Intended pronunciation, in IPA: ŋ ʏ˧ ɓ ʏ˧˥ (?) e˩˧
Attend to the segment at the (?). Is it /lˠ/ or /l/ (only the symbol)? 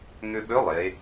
lˠ